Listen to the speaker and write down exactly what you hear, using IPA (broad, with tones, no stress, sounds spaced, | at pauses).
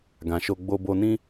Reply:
ɡ ã˨ ʃ o˧ ɡ͡b o˧ b o˧ n ĩ˦